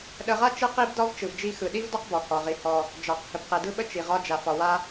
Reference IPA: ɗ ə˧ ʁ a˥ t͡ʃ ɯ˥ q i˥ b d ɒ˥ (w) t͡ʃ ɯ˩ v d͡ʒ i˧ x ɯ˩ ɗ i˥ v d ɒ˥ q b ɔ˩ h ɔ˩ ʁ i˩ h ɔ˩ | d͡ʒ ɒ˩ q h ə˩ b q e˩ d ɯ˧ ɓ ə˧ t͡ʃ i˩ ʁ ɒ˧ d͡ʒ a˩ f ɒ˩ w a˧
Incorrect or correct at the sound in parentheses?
incorrect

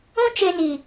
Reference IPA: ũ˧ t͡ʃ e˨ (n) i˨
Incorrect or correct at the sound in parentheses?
correct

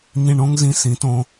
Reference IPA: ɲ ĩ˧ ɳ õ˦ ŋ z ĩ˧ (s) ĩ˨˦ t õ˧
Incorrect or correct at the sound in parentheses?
correct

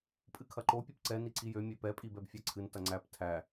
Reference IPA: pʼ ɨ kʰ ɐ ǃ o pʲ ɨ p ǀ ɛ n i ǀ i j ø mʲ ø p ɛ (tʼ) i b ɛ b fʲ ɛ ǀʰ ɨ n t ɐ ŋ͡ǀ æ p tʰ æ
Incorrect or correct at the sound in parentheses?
incorrect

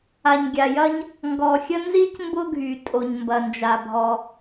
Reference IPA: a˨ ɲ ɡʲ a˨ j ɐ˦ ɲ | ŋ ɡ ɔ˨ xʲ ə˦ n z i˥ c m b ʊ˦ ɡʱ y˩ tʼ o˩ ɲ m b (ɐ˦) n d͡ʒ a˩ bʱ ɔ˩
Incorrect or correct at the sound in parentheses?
incorrect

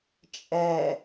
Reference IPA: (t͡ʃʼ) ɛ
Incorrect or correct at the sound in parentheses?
correct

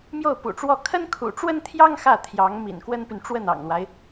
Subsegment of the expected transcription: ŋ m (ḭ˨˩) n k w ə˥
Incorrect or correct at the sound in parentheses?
correct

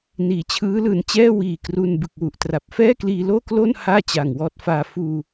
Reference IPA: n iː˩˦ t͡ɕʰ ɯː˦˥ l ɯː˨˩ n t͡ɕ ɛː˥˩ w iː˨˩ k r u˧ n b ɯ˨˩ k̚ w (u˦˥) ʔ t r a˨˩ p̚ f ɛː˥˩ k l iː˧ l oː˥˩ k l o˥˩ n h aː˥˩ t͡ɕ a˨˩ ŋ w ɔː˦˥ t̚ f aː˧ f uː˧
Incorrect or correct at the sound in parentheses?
incorrect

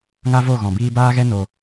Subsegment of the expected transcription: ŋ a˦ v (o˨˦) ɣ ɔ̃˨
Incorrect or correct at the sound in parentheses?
incorrect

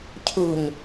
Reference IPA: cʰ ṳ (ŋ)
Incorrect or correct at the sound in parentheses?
incorrect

